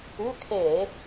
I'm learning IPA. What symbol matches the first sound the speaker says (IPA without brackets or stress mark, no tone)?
ʉ